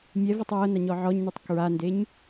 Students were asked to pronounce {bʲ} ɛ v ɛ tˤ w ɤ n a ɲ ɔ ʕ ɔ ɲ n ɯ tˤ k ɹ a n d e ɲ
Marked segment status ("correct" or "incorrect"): incorrect